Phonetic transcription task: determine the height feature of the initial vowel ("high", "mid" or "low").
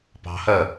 low